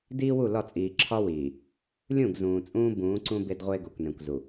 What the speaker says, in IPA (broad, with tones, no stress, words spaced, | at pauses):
diː˦wu˦˨lɒ˦˨t͡sʼiː˨ ǁʰɒ˦wiː˨ | lʲũ˦˨ɡzũː˨ t͡sʼũː˦ bũː˨˦ǀũ˦ be˦dʁʷe˦ɡo˨kʷnẽ˨kʷ zu˨